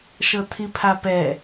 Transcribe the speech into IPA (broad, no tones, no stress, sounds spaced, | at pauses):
ʃ ɤ tʰ i pʰ a p ɛ